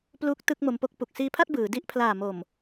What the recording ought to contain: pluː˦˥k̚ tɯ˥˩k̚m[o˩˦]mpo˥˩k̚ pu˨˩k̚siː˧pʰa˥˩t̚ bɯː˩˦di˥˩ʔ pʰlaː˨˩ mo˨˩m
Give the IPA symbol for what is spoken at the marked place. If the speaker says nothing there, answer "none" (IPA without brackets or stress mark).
o˧